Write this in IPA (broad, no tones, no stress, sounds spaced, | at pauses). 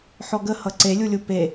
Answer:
ħ ɔ ɡ ə h ʌ ǀ e lʲ u lʲ u p e